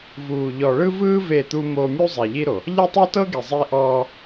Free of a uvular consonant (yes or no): yes